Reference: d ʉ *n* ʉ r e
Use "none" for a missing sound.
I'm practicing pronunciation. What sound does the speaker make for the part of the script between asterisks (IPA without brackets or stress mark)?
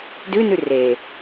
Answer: n